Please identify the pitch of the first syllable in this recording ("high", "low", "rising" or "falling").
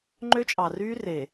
high